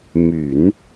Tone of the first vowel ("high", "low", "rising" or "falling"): low